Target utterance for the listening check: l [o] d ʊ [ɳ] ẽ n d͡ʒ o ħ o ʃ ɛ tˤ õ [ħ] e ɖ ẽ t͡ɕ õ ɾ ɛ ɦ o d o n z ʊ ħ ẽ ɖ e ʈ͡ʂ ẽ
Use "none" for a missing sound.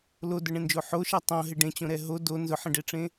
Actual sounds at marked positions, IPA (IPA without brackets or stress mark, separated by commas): o, ɳ, ɦ